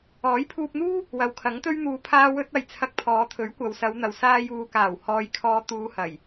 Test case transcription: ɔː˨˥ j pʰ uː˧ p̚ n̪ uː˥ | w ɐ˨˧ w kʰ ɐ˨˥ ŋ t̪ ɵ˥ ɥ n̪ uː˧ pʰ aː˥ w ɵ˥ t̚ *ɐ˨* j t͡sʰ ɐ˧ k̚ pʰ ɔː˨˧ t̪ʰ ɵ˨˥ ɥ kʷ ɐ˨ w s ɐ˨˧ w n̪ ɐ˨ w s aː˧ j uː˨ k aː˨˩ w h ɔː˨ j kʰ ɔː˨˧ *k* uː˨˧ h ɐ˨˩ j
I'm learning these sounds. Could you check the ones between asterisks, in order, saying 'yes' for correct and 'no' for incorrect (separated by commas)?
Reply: yes, no